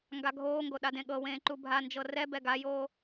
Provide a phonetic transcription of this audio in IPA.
ŋɡaɡʱoːŋɡo ɗadẽɠɤwẽː ǃubʱand͡ʒɤ rɛbɛ ɡajoː

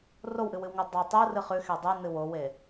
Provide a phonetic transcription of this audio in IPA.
rowʔɨwɨwŋo dˤɐ tˤurɨ χʉxe dˤɨnɨ wowe

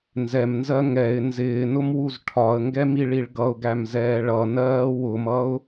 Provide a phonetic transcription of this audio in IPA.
nzɛmnzɜ ŋɛɪ̯ nzɪːnʊmwuz ʈʰɒə̯ŋɡɛmiɭiɭ ɡʌʊ̯ɡæmzɛː ɭʌnɜː wʊmʌʊ̯

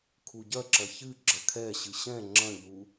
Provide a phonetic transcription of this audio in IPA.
kʰuɟɐǁɐ çɨɡ͡ǁɐ kʰɛɕɨ ɕɛ̃ ŋ͡ǁɐ̃ʎu

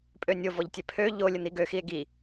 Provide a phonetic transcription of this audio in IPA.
pʼønʲovɔʎtʲɛ pʰø ʎolʲ ən̪iɡøxie̯ ɡi

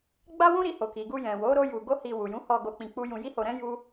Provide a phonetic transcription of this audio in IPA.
ɡ͡ba˦wũ˦ɾi˧ ho˨ki˨ɡu˧ jɛ̃˨ wo˨˦ ɾo˦ju˧ ɡo˦hi˧ wu˨jũ˨˦hɔ˧ ɡo˧k͡pĩ˧ k͡pu˦ jũ˧ji˦ho˧ɾɛ̃˦ ju˦

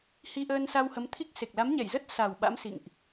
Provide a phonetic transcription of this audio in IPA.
hi˧ʔəː˧nsa˧w hə˨˦mt̪ʰi˦˥k̚ se˨˩k̚la˨˦mɲɛ˧˩jzə˦˥t̚ sa˨˩w ɓa̰˧˥msḭ˧˨ŋʔ

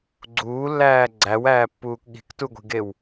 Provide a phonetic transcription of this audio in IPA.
ɡ͡ǀuːlːæː ɡ͡ǀæwæːpːuːk ɠi̤ktuɡʷi̤ɡew

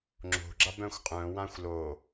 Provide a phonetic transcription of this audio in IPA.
ŋ͡ǁo̤ɡ͡ǁab œ̃xʷqʼœ̃wãxʷ lo

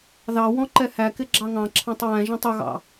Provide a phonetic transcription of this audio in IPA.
ðɑwɔ̃ ǃɛhækɪ ɡ͡ǁɑŋɑ̃ǁʰɑ̃tˤ wæ̃ ʒɑ̃tˤʊɣɑ̰

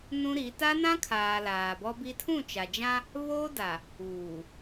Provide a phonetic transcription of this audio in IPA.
nũ˦ɾi˨˦ ta˦nã˦kʰaː˨ laː˨bɔ˦bi˦ tʰũ˦˨t͡ʃa˨d͡ʒã˦ | βoː˦da˨ | uː˨

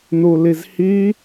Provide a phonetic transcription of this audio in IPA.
nulizhi

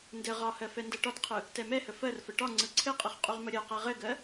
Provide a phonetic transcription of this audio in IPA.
ndɘ ʁɒhɜ fɛndɜʈɒtqʰɯ | tɛmɛhə fɜrfə ʈɒ ŋ͡ǀɯǀʰɘqʼɯχ qʼuʁməɾʲɜqɛ ʁɘɡɜ

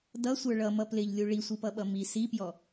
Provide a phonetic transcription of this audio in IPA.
dʌsʷə˞ ɭʌmʌ plɪʎlʲu ɭisʷipʌɓʌ mi sipjɔ

